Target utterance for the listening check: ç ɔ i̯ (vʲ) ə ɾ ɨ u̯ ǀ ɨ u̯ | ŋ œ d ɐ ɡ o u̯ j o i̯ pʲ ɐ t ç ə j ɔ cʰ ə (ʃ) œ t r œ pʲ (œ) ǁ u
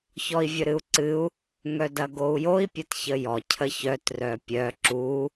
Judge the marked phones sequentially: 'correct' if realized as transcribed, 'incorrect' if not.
correct, incorrect, correct

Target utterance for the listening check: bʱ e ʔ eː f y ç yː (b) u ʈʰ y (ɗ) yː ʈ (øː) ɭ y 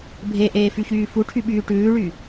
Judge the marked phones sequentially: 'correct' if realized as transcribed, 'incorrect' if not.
incorrect, incorrect, incorrect

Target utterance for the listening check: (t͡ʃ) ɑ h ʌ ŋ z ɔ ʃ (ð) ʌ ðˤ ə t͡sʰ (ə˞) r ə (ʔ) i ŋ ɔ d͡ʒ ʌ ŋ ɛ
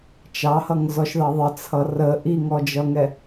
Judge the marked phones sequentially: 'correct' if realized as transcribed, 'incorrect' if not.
correct, correct, incorrect, correct

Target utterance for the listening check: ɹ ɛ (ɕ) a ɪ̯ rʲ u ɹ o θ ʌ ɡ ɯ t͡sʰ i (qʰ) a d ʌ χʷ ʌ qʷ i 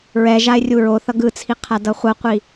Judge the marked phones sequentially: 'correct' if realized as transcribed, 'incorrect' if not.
incorrect, correct

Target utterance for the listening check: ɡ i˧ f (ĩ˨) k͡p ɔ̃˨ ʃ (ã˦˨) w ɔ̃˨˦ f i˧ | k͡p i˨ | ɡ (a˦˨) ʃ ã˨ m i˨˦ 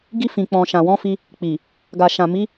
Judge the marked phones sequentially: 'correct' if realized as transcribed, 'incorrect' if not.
correct, incorrect, incorrect

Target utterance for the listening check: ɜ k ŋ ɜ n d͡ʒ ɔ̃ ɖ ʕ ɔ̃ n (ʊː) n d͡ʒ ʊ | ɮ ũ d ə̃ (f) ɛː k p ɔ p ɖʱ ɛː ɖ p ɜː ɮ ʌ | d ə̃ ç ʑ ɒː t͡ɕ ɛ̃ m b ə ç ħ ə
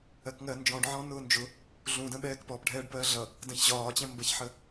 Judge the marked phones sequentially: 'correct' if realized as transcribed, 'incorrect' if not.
correct, incorrect

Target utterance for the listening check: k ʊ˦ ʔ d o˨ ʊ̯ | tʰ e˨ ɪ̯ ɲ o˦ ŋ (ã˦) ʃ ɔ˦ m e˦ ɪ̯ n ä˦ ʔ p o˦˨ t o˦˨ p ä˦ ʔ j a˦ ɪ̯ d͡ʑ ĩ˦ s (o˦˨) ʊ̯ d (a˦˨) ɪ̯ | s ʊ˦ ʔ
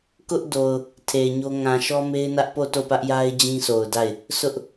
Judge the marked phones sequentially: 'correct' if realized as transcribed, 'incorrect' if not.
incorrect, incorrect, correct

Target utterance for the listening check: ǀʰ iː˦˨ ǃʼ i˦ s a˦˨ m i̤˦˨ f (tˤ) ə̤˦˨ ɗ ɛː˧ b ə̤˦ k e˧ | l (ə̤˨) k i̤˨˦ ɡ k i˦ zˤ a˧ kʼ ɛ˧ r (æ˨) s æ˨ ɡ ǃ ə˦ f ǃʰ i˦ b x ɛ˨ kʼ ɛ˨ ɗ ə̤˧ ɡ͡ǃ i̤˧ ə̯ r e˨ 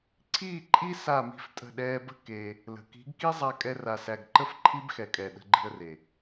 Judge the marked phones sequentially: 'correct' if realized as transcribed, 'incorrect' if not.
incorrect, correct, incorrect

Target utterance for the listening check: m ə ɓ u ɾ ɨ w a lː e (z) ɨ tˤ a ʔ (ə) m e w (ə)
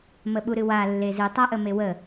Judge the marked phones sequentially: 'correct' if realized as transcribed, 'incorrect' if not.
correct, correct, correct

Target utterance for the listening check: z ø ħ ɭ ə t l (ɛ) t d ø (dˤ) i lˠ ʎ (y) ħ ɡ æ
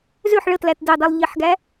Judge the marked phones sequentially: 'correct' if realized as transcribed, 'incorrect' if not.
incorrect, correct, incorrect

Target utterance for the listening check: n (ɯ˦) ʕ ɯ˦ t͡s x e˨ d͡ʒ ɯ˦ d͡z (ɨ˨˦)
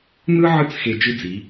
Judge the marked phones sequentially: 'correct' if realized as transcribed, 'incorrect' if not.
correct, incorrect

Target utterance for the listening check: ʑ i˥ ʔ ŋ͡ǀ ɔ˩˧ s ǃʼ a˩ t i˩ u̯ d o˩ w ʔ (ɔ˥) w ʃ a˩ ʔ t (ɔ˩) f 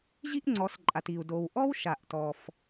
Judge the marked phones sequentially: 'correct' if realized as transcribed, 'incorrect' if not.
correct, correct

